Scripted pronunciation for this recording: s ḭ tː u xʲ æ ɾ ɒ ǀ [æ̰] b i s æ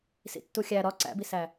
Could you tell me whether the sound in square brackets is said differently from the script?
no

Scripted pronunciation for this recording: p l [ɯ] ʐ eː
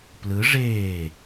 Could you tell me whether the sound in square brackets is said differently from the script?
no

